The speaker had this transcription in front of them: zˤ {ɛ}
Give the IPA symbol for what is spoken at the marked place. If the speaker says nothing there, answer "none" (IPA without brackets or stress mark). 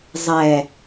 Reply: ɛ